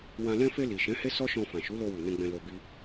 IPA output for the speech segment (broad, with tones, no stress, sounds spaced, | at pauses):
w ã˧ l ɛ̃˧ f e˧ l i˨ ʃ ɛ̃˨˦ h e˦ s ɔ˦ ʃ ɔ̃˧ f ã˨ ʃ u˨˦ l o˧ w u˨ n ɛ̃˧ ɡ͡b ɛ̃˧ l o˧ b i˦